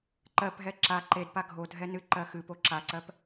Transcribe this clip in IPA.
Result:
ǃ ɜ p ɦ ɛ ǁ a ǃ e d p a ɡʱ o dʱ ɛ n ɨ ǃ ɜ x ɨ p o ǁ a ǀ ɜ p

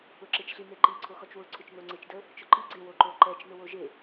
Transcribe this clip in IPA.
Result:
ʊ ǁ e t͡ʃ ɬ i n e ǃ i ǀʰ o x ɔ t͡ʃ w ʊ ǀʰ ʊ t͡ʃ n o ŋ͡ǀ e t͡ʃ d ə | t͡ʃ ʊ ǃ i ɡ͡ǀ e w o ǃ o ǃ ɛ t͡ʃ n ʊ w o ʒ e

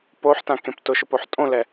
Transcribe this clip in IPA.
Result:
p o ħ t ã k ẽ p t ʊ ʃ ʊ p o ħ tʼ õ l ɛ

